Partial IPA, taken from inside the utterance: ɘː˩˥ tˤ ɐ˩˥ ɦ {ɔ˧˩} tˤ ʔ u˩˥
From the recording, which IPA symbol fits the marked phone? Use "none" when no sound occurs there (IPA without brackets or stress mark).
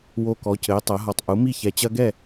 ɔ˧˩